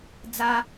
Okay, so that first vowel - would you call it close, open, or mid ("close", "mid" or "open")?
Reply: open